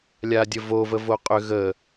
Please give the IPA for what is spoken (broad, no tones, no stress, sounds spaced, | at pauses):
lʲ a dʲ ə v o v ə v o qʼ ʏ ɣ ə